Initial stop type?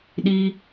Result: implosive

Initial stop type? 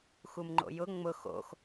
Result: click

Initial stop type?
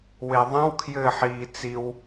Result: aspirated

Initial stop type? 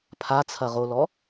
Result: aspirated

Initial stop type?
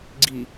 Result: click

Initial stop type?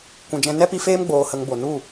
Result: plain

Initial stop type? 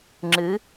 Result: click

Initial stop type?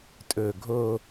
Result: ejective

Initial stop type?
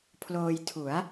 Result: aspirated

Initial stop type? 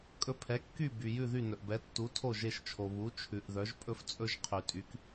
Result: ejective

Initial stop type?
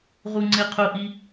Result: click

